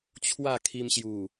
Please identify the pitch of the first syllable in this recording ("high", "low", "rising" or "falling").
falling